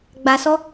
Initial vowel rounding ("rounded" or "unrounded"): unrounded